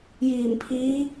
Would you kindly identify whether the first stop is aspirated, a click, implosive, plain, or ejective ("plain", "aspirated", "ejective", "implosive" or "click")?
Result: aspirated